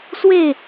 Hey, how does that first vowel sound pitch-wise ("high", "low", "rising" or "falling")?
falling